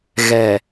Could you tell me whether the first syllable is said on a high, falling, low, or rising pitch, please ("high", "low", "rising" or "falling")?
low